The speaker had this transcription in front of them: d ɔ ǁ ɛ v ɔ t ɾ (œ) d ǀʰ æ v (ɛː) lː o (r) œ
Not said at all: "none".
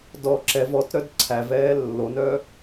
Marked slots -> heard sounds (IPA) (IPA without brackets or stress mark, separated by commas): œ, ɛː, n